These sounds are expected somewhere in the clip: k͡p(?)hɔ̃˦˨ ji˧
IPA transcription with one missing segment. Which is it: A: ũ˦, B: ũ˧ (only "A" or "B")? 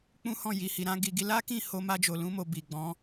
A